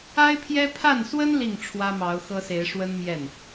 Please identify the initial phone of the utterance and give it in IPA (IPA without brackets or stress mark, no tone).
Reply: a